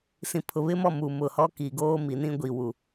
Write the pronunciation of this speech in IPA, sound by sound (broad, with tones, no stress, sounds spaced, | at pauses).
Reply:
s ĩ˨ pʰ ʊ˨ β ɪ˦ m ɔ˦˨ m u˨ m ʊ˨ h ɔ˦ k i˨ ɡ oː˦ m i˨ n ĩ˦ ɡʷ i˨ w u˨